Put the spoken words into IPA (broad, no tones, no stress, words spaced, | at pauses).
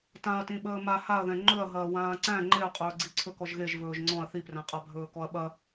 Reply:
tãɐ̯tĩɓəː ma haɐ̯ðɛ̃ ŋ͡ǃɵɐ̯ ɦɐːwãːǀæ̃ ŋ͡ǃeɐ̯qʼɵːɡ͡ǀi ǀʰɵkɔʒɣeʒ vɵːʒŋ͡ǀɔ̃ɐ̯ θipræ̃qʼa bʱɵːkɔɐ̯ɓɐ